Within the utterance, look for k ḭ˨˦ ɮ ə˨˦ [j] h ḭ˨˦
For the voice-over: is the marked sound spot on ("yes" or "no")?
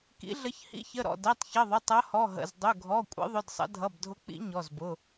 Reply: no